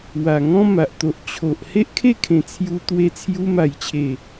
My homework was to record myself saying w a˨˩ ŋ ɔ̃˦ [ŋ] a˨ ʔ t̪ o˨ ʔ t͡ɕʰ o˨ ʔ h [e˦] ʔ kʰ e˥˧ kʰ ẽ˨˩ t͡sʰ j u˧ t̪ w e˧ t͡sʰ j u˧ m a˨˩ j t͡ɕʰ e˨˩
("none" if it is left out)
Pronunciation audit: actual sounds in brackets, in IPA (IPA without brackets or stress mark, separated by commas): m, e˦